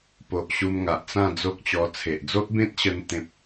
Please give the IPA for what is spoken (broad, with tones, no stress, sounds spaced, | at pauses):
p o˨ ʔ ɕ u˧ m ŋ a˨ ʔ t͡s ã˥˧ d͡z o˦ k̚ t͡ɕ ɔ˧ t͡sʰ e˨ ʔ d͡z o˦ ʔ b ẽ˦ t̚ ɕ ə˧ n t̪ ẽ˦ p̚